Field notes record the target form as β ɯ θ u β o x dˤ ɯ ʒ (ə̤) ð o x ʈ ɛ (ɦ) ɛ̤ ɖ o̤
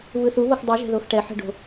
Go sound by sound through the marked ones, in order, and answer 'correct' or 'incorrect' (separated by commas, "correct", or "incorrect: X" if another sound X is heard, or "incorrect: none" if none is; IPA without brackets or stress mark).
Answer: incorrect: ɛ̤, incorrect: ħ